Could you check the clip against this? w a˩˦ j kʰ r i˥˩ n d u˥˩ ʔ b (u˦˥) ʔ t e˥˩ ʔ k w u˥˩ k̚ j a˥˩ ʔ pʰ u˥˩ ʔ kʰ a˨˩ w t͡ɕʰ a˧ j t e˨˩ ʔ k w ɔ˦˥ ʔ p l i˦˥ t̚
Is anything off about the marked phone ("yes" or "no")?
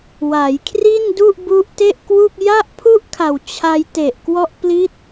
no